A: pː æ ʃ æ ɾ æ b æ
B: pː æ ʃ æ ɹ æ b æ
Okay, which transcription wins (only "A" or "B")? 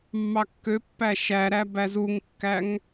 A